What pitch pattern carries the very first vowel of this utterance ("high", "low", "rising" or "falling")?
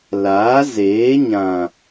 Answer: rising